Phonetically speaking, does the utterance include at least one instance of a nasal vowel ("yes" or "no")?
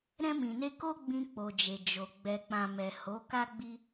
yes